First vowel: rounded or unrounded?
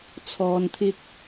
rounded